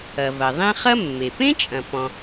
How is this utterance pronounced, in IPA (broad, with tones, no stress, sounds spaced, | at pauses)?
ɐ˩ v ɐ˩ ðˤ ẽ˦ χ ɐ˥ mː e˩ p ẽ˥ t͡ʃʼ ɐ̃˩ p ɔ̃˩